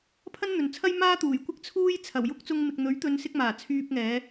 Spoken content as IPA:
pʰ ɐ˥ n n̪ ɵ˨ n t͡sʰ ɐ˥ j m aː˥ t̪ uː˨˩ j kʷ ɪ˥ k̚ t͡sʰ uː˥ j t͡sʰ ɐ˨˩ w j ʊ˥ k̚ t͡s ʊ˧ ŋ m ɪ˨ k̚ n̪ ɵ˨˥ ɥ t̪ ɵ˨˧ n s ɪ˧ k̚ m aː˨˩ t͡sʰ yː˧ p̚ ŋ ɛː˨˧

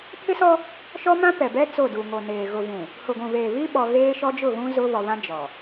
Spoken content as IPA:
pʰ ɪ˦ s ɔ˦ | ʃ ɔ˦ m ã˦ p ɛ˨ b ɛ˦ t͡s o˦˨ d u˨ ŋ o˨ n eː˨ ɣ ʊ˨ v ũ˨ | h ʊ˨ ɡʷ ũ˨ β eː˨ β i˦ ɓ ɔ˨ ɣ eː˦ ʃ ɔ˦ d͡ʒ ʊ˦˨ ɣ ũ˦ z ʊ˦ β ɔ˨ β ã˦ d͡ʒ ɔ˨

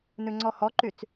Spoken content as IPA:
n ʉ ŋ͡ǀ ɔ h ɔ ǃ y t͡s

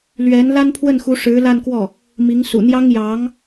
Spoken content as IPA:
l ɥ ɛ˧˥ n l a˥ n pʰ w ə˥˩ n x u˧˥ ʂ ɻ̩˧˥ l a˥˧ n k w ɔ˥˩ | m i˧˥ ŋ s ṵ˨˩ n̪ j ɑ˥ ŋ j ɑ˧˥ ŋ

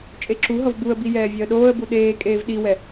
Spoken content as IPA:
t͡ʃʼ e ǁ u ɦ ʌ v b u ə̯ b i j ɛː vʲ ɛ ə̯ ɗ oː ə̯ b u ɗ eː kʼ eː v ɗ i w ɛ

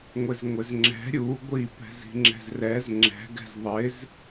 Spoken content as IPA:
ŋʷ ɪ z ŋʷ ɪ z ŋ͡ǁ ɛ̤ ɾʲ u ɡʷ i p ɛ̤ z i̤ ŋ͡ǁ ɛ̤ z r ɛ z ŋ͡ǁ ɛ̤ ɡ ɛ̤ z ðˤ ɪ z

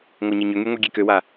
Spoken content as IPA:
ŋʷ a ɲ e ɲ ʏ ŋ y ŋʷ e ɡʲ e k ø w a

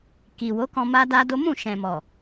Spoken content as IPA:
k i˨ w o˨˦ k ɔ̃˧ m a˦ d a˦ d o˦ m ũ˦˨ ʃ ɛ̃˨ m ɔ˨

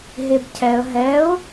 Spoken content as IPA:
ɦ e b cʰ ɛ ə̯ ɦ ɛ ʊ̯

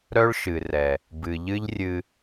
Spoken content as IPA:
ɾ œ˦ ɭ ʃ ɨ˨ r ɛ˨ | b ɨ˨ ʎ ɨ˦ ʎ rʲ ɨ˧

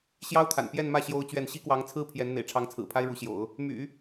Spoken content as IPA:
ɕ j ɑ˥ ʊ̯ t̪ʰ a̰˨˩ n p j ɛ˥˧ n m ä˥˩ ɕ j o˥ ʊ̯ t͡ɕ ɥ ɛ˥˩ n ɕ i˥ k w ɑ˧˥ ŋ t͡sʰ ɹ̩˥ pʰ j ɛ˧˥ n n̪ ḛ˨˩ ɪ̯ ʈ͡ʂʰ ɑ˧˥ ŋ t͡sʰ ɹ̩˨˩ pʰ a˥ ɪ̯ ɻ u˧˥ ɕ j o̰˨˩˦ ʊ̯ | m y̰˨˩˦

